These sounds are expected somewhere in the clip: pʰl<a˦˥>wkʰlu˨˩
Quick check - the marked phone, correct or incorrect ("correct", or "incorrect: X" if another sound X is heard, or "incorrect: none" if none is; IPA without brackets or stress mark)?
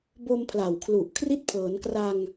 incorrect: a˨˩